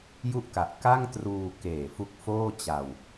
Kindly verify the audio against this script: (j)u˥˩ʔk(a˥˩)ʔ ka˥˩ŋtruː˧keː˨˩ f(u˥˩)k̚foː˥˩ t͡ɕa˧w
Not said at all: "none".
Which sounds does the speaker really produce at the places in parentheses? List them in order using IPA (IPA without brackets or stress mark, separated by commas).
j, a˨˩, u˦˥